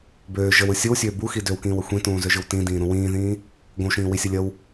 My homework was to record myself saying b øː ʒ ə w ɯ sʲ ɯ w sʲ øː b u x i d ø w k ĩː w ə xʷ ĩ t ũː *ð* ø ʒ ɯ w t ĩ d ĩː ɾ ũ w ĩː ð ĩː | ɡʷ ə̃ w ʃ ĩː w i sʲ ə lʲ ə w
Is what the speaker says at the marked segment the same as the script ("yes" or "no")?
no